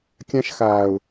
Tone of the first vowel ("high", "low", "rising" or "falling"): high